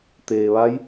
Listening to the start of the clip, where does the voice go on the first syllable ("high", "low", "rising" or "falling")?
low